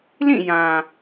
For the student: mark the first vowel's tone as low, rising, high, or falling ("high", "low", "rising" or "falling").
falling